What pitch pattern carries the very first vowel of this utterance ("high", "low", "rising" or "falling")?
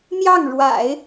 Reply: falling